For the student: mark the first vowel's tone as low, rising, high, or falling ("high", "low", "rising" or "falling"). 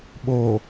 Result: low